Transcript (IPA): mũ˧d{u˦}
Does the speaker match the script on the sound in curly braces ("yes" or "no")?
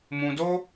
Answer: no